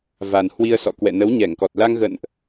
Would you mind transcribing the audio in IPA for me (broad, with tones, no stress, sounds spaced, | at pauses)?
v a˨˩ n h w i˧ ə̯ s ɔ̰˧˨ k w ɛ̰˧˨ n ə˨˦ w ɲ ɛ˧˩ ŋ k ɔ˨˩ t̚ l a˧ ŋ ɣ ə̰˧˨ n ʔ